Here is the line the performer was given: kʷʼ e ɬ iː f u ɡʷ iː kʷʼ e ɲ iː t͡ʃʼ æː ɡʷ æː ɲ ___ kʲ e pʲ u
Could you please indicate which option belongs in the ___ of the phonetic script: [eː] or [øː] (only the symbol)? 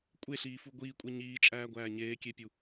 eː